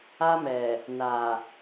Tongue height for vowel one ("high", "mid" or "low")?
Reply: low